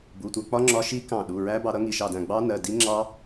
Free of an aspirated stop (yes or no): yes